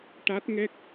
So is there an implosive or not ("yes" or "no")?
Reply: no